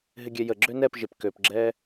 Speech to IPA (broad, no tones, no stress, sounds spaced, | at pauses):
ɦ ɪ ɡʲ ɛ j ə ɡ͡ǁ ø n ɛ p ʒ ɪ p k ø p ɡ͡ǁ ɛː